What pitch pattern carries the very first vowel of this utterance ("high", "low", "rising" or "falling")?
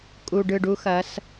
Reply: low